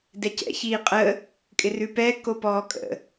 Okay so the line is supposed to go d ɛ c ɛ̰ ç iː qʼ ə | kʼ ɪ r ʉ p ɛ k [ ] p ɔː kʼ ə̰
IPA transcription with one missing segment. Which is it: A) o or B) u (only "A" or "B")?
A